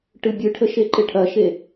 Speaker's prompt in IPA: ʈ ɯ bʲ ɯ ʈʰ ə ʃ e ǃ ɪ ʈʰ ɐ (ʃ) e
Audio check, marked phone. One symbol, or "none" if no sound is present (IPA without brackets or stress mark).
ʃ